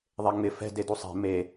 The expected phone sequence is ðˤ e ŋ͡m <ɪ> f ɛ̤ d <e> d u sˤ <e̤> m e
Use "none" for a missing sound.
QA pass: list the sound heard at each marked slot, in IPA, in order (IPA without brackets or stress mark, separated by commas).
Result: ɪ, e, e̤